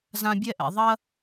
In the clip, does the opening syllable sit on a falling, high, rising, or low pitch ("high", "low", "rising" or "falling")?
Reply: high